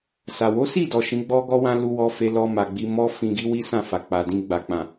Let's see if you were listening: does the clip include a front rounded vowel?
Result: no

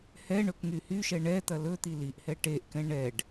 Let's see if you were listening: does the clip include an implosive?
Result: no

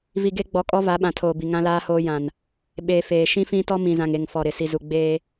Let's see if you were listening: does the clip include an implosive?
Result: yes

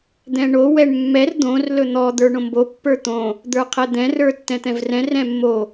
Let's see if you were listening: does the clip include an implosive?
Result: no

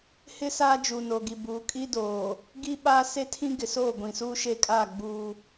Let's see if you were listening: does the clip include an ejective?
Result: yes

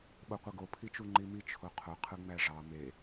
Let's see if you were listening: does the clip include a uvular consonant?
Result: yes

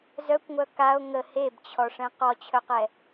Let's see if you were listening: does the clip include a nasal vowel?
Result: yes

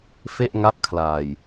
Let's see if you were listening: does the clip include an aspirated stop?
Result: yes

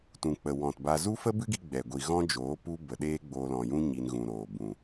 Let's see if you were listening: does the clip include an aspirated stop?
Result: no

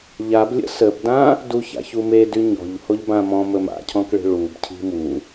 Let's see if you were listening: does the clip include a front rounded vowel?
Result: yes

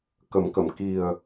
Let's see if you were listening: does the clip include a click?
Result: no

